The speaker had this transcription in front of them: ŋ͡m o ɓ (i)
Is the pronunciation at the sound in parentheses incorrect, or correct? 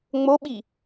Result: correct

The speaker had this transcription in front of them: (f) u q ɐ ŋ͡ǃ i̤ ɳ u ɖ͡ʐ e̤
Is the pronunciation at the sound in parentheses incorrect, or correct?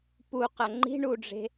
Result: incorrect: p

